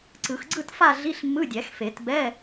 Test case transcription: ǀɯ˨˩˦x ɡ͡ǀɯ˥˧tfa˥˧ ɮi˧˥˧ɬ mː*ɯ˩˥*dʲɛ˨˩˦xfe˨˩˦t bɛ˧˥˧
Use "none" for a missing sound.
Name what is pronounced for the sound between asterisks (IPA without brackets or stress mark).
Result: ɯ˧˥˧